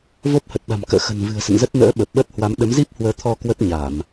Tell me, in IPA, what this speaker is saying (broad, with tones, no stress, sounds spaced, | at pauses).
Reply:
v o˦˥ p̚ h ə˨˩ t̚ ɗ a̤˨˩ m k ə̰ː˧˨ x ə̤˨˩ n v ɨ̤˨˩ ə̯ s ə̰˧˨ n z ə˦˥ t̚ n ə̰ː˧˥ ɓ ə˨˩ p̚ ɓ ə˦˥ t̚ h w a˨˦ m ɗ ə˨˦ m z i˦˥ p̚ h w əː˨˦ t̪ʰ ɔ˧ k w ə˦˥ t̚ ɲ a˧˩˨ m